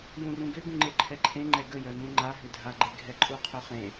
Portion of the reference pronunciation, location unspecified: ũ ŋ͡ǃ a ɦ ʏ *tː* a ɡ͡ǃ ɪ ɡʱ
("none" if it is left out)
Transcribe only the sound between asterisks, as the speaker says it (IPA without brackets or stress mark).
dʱ